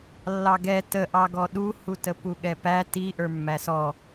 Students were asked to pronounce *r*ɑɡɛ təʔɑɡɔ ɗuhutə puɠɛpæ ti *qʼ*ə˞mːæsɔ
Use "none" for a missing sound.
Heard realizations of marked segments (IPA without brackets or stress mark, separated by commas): lː, ʔ